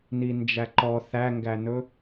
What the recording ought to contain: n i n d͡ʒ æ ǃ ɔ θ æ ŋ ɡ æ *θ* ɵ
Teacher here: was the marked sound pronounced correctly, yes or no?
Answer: no